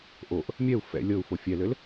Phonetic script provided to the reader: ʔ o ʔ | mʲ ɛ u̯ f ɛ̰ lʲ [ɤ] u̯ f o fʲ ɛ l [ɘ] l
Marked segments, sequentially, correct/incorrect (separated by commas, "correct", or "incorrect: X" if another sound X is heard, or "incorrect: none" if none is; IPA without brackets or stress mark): correct, correct